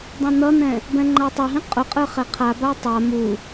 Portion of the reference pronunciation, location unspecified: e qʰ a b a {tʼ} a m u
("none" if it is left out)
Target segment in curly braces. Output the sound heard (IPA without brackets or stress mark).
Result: tˤ